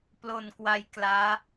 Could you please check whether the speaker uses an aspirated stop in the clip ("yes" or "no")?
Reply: no